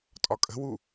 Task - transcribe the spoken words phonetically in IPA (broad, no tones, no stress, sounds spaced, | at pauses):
tʼ ɒ kʼ ə̤ w u